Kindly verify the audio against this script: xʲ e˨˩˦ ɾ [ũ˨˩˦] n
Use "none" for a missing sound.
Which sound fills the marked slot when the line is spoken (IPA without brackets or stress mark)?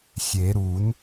u˨˩˦